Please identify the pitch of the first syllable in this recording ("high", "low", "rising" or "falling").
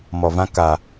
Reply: low